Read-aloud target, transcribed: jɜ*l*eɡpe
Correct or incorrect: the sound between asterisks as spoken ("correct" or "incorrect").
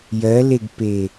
correct